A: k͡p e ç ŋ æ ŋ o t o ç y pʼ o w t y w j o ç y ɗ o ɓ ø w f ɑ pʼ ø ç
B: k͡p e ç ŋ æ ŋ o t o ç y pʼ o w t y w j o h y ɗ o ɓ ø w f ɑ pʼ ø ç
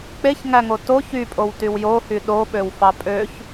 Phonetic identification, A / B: B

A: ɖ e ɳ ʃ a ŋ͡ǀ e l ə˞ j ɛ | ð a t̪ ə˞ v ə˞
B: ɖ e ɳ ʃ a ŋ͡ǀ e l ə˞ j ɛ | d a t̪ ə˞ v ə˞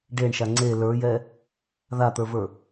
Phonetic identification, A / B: A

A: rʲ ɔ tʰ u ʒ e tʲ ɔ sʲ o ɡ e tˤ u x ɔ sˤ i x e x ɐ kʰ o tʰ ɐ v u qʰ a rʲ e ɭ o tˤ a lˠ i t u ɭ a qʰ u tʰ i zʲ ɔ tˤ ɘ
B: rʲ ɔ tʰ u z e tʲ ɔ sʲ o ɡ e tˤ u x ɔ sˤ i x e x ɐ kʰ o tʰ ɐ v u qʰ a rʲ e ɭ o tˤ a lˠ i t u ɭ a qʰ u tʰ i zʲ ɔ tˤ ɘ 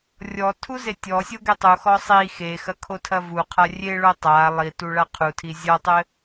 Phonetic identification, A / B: B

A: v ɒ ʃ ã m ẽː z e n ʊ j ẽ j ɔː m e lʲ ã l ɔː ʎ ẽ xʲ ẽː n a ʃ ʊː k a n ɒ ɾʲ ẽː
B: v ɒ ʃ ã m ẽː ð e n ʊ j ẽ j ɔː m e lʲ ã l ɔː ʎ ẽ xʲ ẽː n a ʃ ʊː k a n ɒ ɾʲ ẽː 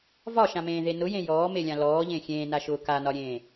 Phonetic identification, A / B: B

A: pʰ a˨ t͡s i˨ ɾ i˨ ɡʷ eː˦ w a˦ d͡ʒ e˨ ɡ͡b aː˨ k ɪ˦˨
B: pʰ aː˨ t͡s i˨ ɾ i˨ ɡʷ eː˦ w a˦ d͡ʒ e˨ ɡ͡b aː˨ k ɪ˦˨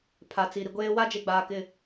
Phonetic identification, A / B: A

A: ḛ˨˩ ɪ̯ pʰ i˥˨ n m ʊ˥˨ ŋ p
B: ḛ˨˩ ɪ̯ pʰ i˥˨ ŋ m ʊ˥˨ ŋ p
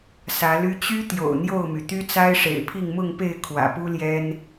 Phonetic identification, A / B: B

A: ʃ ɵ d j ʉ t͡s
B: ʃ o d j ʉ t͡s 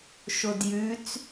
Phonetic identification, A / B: B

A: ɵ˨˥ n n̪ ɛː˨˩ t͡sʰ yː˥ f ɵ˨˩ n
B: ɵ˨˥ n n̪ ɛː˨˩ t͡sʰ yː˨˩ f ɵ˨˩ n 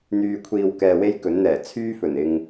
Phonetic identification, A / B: A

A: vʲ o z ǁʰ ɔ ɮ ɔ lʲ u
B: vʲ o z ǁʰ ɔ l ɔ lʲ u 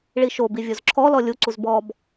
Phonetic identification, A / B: B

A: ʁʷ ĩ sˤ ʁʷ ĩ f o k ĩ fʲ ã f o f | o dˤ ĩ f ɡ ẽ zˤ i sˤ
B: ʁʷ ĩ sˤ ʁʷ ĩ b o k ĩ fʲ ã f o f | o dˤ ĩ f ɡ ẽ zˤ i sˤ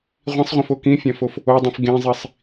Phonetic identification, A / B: A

